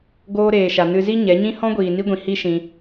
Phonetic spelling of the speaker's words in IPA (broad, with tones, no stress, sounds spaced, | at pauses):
ɡ oː˧ ɾ eː˨ ʃ a˨ n ɨ˧ z i˦ ɲ ɛ˨˦ ɲ ĩ˦ h ɔ̃˦ ɡʷ iː˨ n i˧ ɡʷ ĩ˨ h i˦ ʃ ĩ˧